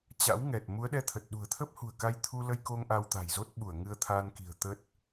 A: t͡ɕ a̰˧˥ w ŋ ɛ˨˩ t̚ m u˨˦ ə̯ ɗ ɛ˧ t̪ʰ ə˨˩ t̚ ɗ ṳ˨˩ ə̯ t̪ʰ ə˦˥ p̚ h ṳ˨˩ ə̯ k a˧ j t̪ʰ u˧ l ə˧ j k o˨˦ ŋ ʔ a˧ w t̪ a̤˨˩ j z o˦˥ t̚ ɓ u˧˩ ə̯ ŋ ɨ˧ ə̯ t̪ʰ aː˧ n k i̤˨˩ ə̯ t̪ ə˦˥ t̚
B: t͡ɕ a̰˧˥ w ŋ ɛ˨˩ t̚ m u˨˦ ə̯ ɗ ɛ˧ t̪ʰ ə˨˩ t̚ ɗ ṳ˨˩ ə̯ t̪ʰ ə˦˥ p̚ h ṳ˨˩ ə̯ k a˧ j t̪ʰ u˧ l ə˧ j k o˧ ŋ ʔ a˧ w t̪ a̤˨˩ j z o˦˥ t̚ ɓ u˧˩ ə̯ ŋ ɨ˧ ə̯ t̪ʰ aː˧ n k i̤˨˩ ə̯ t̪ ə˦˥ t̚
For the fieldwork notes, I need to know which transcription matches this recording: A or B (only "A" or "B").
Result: B